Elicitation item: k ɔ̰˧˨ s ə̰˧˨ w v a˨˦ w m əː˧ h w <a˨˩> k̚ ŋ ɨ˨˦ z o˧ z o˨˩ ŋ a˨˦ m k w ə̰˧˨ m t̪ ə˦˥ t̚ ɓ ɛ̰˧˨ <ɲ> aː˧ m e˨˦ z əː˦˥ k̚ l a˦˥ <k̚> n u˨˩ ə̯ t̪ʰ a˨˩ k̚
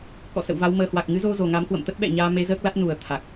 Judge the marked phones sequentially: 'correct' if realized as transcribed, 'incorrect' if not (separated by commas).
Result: correct, correct, incorrect